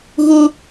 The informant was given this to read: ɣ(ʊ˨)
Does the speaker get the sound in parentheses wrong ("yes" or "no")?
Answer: yes